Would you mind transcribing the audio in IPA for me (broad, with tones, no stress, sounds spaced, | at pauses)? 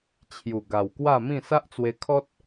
t͡ɕʰ j u˨˩ ɡ a˨˩ w k w a˥˧ m ĩ˥˧ s a˦ ʔ t͡s w e˧ kʰ ɔ˦ t̚